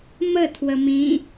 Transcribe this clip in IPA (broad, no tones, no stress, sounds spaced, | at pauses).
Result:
m ə tʰ w ə m ĩ